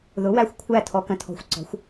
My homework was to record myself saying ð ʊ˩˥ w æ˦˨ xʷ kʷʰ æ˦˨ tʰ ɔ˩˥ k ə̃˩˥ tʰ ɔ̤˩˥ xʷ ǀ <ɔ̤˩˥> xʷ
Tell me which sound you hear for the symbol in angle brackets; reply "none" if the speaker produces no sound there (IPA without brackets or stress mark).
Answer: ɔ̤˩˥